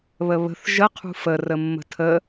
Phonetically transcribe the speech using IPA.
β ə β ə̤ θ ʒ ə qʰ ṳ f ə r ə mː ə̤ tʰ ə

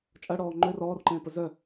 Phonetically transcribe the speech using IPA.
t͡ʃʼ ɐ ɽ ɔː ŋ͡ǃ ø r ɔː r ǃ ẽː p ə z œ

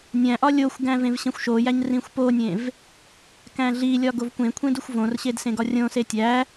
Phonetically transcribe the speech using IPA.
nʲ æ̃ ʔ ɒ lʲ o xʷ ɡ æ̃ v ẽ v ɕ ẽ xʷ ʃ o j æ ɲ r ĩ xʷ p o nʲ ẽ v | k æ̃ ɮ i lʲ ɒ ɡ o v kʷ ẽ kʷʰ ẽ d u xʷ v õ r ɕ e d s ẽ ɡ ɒ rʲ õ s e tʲ æ

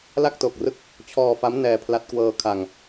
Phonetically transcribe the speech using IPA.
l a˥˩ k̚ t o˨˩ k̚ r ɯ˦˥ k̚ | t͡ɕʰ ɔː˧ f a˦˥ m n ɛː˧ pʰ l a˦˥ t̚ k w ɤː˧ kʰ a˧ ŋ

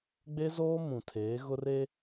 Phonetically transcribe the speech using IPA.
ɡ͡b e˦ z oː˦ m ũ˨ tʰ eː˨˦ ɣ ʊ˦ r e˦

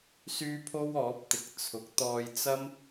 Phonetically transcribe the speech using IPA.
s yː˥ pʰ o˥ w ɔː˨˥ p̚ t̪ ɪ˨˥ k̚ t͡sʰ ʊ˨˥ k̚ t̪ ɔː˧ j t͡s ɐ˥ m

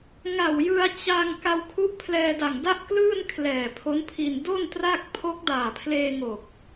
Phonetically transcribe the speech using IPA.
ŋ a˨˩ w j ɯ˧ a̯ t͡ɕ a˧ ŋ k a˧ w kʰ u˦˥ ʔ pʰ l ɛː˧ d a˨˩ ŋ d a˥˩ ʔ k l ɯː˥˩ n kʰ l ɛː˨˩ pʰ o˦˥ n pʰ i˧ n d o˥˩ n t r a˥˩ k̚ pʰ o˦˥ k̚ d aː˨˩ pʰ l eː˧ ŋ o˨˩ k̚

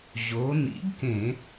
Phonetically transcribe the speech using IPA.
ʑ o˩˧ n ḭ˨˥ ɡ k ẽ˧˩˧

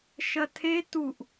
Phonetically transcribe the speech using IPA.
ʃ ɐ tʰ e t u ʔ

